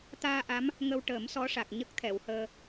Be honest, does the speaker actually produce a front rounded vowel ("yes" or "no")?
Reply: no